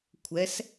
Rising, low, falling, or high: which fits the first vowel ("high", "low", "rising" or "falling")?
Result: rising